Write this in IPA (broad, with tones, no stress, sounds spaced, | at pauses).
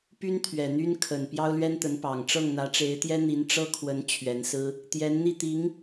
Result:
p y˥ n t̪ʰ ɥ ɛ˨˩ n̪ y˥ n kʰ ə˨˩ n p j ɑ˥ ʊ̯ l ɥ ɛ˥ n t̪ ə˧˥ n p ɑ˨˩ ŋ ʈ͡ʂ ɤ˥˩ ŋ n̪ ä˧˥ ʈ͡ʂ e˧˥ ɪ̯ t̪ j ɛ˥ n̪ i˧˥ n ʈ͡ʂ ɤ˥ kʰ w ə˧˥ n t͡ɕʰ ɥ ɛ˧˥ n s ɹ̩˥ | t̪ j ɛ˧˥ n n̪ i˥˩ t̪ i˧˥ ŋ